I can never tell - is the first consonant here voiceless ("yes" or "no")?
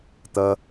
yes